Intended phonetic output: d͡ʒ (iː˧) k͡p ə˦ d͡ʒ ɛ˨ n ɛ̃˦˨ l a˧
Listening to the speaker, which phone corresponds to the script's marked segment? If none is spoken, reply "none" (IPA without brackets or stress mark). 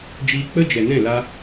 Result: iː˧